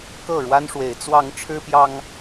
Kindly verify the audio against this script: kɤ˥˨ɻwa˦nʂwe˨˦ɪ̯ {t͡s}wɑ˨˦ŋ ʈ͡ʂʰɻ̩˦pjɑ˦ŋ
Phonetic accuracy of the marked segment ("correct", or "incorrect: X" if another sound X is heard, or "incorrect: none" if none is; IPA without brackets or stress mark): correct